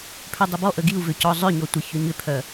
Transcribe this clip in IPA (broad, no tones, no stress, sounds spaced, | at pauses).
pʰ ʏ dˤ ʏ b ɔ ʔ ə ɡ i u̯ v ʏ c ɔ zˤ ʏ ɲ ɔ tʷ ə ç ʏ ɲ ʏ pʰ œ